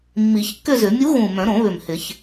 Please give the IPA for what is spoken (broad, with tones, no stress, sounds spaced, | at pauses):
mː i˨˩˦ ç kː ʏ˥˧ z ʏ˨˩˦ mʲ u˧˥ ɣ ũ˨˩ m œ̃˨˩˦ ɾ õ˨˩˦ β ʏ˨˩ m h ɪ˨˩˦ ç